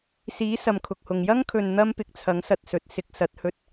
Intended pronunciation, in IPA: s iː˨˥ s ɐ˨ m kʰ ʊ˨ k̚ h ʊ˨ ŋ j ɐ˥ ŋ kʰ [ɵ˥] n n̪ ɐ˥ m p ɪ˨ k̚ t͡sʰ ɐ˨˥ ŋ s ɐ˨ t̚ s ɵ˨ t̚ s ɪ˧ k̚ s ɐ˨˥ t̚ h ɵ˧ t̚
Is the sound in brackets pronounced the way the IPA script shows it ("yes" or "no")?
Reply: no